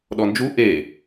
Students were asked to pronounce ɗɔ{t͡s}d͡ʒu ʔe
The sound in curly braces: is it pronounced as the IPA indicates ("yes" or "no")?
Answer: no